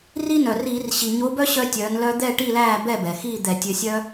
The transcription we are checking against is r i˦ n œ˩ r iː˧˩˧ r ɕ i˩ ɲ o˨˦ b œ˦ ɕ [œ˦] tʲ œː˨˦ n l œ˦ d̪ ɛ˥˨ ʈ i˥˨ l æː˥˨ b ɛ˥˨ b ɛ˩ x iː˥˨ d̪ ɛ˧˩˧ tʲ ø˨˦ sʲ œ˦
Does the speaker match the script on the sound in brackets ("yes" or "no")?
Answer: yes